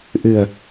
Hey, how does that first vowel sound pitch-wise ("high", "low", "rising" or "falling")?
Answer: low